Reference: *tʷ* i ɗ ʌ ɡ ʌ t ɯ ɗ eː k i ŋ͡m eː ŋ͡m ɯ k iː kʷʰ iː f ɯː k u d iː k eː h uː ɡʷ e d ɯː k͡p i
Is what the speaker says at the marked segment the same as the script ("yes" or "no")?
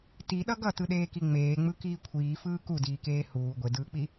no